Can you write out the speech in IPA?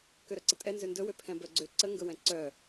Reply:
k ø ɾ œ ǀ ə tʼ ɛ n z ø n d ɵ w ø pʰ ɛ̃ b œ ɡ͡ǀ ø ǀ ə ŋ ɡ ɵ w ɛ̃ ǀ œ

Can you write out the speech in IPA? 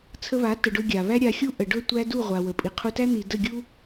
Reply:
t͡sʰ ə˧ β a˨˦ t ə˨ ɖ ɵ˧ ɡʲ a˨ β æ˦ ɾʲ a˧ xʲ u˦ ʔ ə˨ ɖ ɵ˦˨ tʷ æ˦ d u˦˨ ʁʷ a˨ w ə˨ pʼ i˨ qʰ u˧ t æ˦ n̪ i˦ d ə˦˨ ɡʲ u˦

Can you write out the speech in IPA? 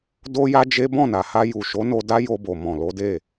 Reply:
d o˦ j a˦ d͡ʒ e˦ b ɔ̃˦˨ n a˨ h a˧ j u˨ ʃ o˨˦ n o˧ d a˦ j o˧ b o˨ m ɔ̃˨ l o˨˦ d e˦˨

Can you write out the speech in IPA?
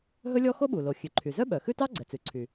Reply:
ɦ ɵ˥ lʲ ɔ˥ x o˥ ɓ u˩ l o˩ xʲ ʉ˩ ǃʰ y˩ z œ˥ ɓ œ˩ x ʉ˥ t ɑ˥ ɡ͡ǀ ɛ˩ t͡s ʉ˩ ǀʰ y˩

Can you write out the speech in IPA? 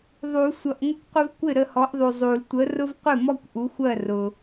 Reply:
ðˤ u˨˩˦ sʷ ʌ˨ ʔ ŋʷ ɪ˦ kʷ qʷ ɪ˦ v kʷ ɪ˥˩ ɾ ə˥˩ h ɔ˨˥ ʔ ðˤ u˨ zˤ u˨˩˦ l tʷ ə˨˥ r ʊ˦ v qʷ ɪ˥˩ m ɔ˦ kʷ ʔ u˨˥ xʷ ɜ˥˩ r ʊ˨

